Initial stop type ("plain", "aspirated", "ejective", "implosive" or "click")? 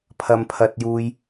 aspirated